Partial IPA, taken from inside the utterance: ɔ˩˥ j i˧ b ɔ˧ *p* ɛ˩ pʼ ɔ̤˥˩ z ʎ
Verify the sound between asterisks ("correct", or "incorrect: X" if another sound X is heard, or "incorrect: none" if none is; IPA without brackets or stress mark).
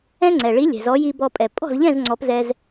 incorrect: pʼ